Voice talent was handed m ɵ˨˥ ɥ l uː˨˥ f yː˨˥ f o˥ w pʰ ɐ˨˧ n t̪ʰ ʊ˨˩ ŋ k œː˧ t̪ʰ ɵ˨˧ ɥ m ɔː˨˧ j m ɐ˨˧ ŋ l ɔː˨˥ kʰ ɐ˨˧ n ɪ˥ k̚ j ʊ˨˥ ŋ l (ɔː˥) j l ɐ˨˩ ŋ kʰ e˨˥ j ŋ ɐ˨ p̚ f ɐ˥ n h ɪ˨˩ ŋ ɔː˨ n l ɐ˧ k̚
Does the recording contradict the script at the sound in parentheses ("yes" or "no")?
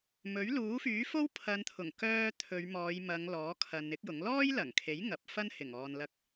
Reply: no